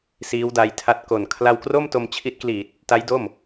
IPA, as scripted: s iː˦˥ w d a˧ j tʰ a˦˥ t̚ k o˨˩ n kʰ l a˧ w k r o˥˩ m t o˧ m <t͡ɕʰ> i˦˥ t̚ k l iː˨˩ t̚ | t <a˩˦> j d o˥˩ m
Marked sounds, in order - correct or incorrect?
correct, incorrect

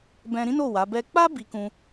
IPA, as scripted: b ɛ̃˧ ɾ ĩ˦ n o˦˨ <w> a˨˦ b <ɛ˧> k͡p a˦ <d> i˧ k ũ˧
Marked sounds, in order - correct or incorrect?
correct, incorrect, incorrect

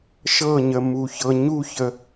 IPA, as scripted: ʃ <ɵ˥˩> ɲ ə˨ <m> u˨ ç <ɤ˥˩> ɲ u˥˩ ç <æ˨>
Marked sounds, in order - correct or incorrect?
incorrect, correct, incorrect, incorrect

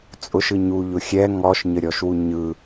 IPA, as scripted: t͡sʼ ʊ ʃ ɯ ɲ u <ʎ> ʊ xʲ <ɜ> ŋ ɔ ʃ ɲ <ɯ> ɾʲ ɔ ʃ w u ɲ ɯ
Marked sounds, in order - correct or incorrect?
correct, incorrect, incorrect

